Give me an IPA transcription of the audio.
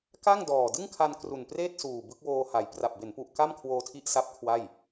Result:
ka˥˩ŋdɔː˨˩ dɯ˥˩ŋkʰa˧n kru˨˩npreː˥˩t̚suː˨˩ bɯ˦˥k̚woː˧ha˩˦j pra˨˩p̚be˩˦npu˨˩ʔ ka˥˩mkʰwoː˧tʰi˦˥ʔsa˦˥p̚ kʰwa˥˩j

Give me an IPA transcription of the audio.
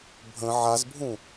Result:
bʱə̃ ʕazbʱũ

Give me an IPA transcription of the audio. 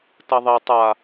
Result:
tɐðˤe tˤa

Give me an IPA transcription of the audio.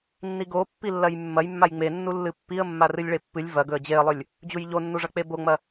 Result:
nːiɡo pːilːɐjmːɐjmːaj ŋ͡menːu lːɨpːiə̯ mːarɨlʲɭepːɨlʲ vɐɡɵə̯ d͡ʑeə̯lˠɵlʲ | d͡ʑujʎonːuʐɐ k͡peboŋ͡mɐ

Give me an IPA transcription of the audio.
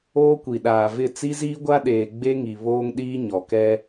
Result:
oː˦kʷi˨ɗaː˨vɪ˦˨ t͡si˦ziː˦ɡʷa˦ɗeː˨ ɡ͡be˦ŋi˨ βoː˦ŋɗiː˦ ɲɔ˨kɛ˦

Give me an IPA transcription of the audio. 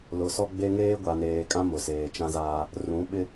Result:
lʊ˨sɔ˦ɡ͡be˦ ŋeː˦ɡʷa˨neː˨kʼã˦ mʊ˨seː˨t͡ʃã˦zaː˦ | rũ˨˦ɓɪ˦

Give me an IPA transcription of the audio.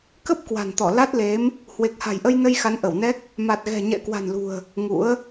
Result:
kə˦˥p̚ kwa̤˨˩nt̪ɔ˧˩ la˦˥t̚le˨˦m | hwe˨˩k̚ha̤˨˩jʔə˧jnə˧j xa˨˦nʔə˧˩wnɛ˦˥k̚ | ma˨˩t̚ɣɛ̤˨˩ɲɛ̰˧˨ kwa̤˨˩nlṳ˨˩ə̯ | ŋṵ˧˥ə̯

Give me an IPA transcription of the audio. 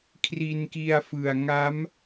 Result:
kʰri˧nki˧a̯fɯ˨˩a̯ ŋa˦˥m

